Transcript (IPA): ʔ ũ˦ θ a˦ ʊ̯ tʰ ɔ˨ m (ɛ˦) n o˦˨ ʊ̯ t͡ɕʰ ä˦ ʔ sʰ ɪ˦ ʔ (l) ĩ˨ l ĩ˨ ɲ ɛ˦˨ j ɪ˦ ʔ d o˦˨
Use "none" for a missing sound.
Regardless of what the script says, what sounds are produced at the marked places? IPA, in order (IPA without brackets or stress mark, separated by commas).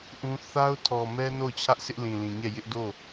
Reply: ɛ˦, l